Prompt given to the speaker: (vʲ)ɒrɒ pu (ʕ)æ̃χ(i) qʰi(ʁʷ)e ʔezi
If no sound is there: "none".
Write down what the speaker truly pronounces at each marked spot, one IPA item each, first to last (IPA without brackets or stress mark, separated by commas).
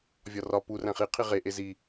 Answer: vʲ, r, i, ʁ